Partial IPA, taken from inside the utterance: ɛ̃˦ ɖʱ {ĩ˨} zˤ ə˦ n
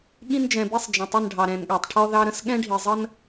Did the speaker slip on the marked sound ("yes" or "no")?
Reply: yes